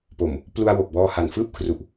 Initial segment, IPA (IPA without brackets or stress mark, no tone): p